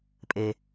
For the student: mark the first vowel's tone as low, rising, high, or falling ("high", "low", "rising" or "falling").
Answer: low